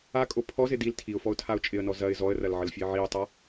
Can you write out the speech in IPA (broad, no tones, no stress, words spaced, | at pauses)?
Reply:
akʼo pʰɔzɪ dil tʰiʊ̯fɔʊ̯tʰaʊ̯ t͡ʃʼɪə̯nɔ zɐɪ̯ zɔə̯rɐlʕəlfʲəɪ̯ ʕiʊ̯tˤa